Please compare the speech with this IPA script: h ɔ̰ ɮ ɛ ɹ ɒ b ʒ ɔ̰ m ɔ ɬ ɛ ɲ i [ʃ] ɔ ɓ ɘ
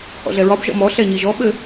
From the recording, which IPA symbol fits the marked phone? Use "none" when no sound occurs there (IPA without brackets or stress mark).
ʒ